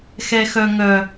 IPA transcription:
xɛxœŋœ

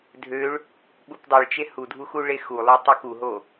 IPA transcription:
dʱøɭ | ɓupdˤeɭt͡ʃe hudʱu xuɭexulˠø tˤukuɦo

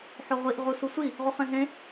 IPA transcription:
ħoʁʷiʔ ʁususʷi | ʁuχẽɦẽ

